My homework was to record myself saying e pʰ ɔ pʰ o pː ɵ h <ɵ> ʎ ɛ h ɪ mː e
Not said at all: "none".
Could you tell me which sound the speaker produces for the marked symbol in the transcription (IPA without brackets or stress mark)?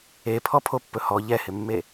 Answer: ɔ